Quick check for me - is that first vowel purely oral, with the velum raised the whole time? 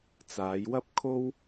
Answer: yes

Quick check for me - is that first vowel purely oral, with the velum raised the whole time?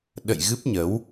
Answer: yes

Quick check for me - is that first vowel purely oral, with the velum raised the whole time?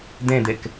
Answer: no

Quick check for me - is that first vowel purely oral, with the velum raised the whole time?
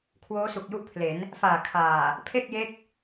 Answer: yes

